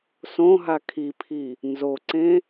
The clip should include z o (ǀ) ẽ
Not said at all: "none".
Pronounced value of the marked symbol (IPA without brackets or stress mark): ǀ